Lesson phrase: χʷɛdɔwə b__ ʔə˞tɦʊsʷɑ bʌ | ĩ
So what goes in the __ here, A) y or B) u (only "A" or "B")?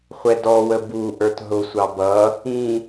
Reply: B